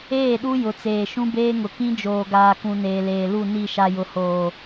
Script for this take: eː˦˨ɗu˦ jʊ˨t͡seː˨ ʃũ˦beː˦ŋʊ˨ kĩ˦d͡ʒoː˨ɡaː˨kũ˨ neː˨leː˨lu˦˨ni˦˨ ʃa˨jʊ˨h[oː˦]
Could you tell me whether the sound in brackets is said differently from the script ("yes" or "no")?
yes